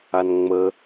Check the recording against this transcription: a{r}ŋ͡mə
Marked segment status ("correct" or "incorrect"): incorrect